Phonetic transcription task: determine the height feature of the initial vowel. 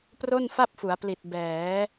mid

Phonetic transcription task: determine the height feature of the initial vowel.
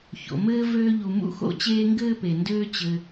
mid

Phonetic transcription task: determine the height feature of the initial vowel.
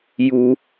high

